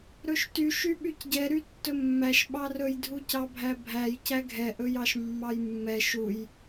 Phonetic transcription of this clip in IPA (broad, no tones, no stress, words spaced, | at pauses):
ɾɵʃtyʃy ɓycɟɛɾy tːɵmːæʃ ɓɑrɵjdʱucɑ bʱæbʱæjcæ ɡʱɛʔɵjɑʃ mːɑjmːɛ ʃuj